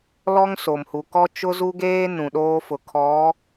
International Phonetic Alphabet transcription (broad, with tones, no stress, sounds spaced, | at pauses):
l ɔ˦ ŋ s o˨ m h u˨ k ɔ˦ t͡ʃ ʊ˦ z u˦ ɡ eː˦ n ũ˨ ɗ oː˦ f ʊ˨ kʰ ɔ˨˦